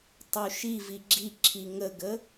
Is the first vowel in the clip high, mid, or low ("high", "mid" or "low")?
high